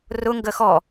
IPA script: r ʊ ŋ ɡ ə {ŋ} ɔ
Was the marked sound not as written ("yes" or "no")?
yes